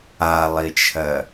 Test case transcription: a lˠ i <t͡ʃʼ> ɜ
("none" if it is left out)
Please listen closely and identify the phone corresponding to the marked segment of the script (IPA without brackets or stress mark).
t͡ʃʰ